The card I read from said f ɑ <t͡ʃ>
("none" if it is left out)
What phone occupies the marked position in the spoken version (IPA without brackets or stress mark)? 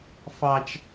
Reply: t͡ʃ